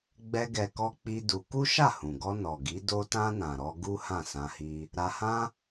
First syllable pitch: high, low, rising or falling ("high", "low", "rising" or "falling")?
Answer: high